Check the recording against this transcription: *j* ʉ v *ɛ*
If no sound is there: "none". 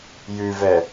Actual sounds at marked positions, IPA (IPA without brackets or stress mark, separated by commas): j, ɛ